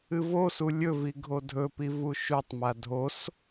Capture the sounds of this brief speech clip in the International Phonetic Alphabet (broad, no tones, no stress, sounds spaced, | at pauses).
ɨ v o s u lʲ ɵ v i ɡʱ o dʱ ɵ p i v u ʃ u tˤ m a dʱ o s